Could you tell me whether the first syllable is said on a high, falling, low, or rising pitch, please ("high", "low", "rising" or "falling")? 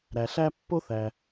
low